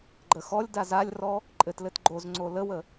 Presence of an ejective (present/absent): present